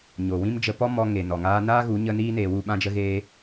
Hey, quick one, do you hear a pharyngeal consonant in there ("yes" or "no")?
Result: no